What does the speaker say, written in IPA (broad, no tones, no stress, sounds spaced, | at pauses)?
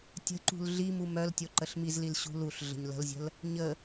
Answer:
tʲ ə̤ ǃ ṳ l ɮ i m u m œ l tʲ o ǃ ə ɬ m i z l i l ɕ ṳ l u ɬ ɮ ə̤ ɲ l ə̤ l zʲ ə̤ l | ɲ ə